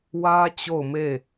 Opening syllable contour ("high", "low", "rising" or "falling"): high